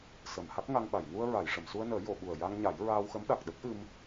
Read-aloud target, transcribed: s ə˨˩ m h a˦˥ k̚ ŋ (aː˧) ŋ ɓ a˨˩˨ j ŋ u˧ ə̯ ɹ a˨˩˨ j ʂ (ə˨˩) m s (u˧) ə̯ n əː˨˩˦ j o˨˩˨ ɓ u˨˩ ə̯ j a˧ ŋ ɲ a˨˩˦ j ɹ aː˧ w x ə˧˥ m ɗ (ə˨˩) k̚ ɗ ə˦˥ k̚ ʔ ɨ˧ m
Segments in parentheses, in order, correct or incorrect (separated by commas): incorrect, incorrect, correct, incorrect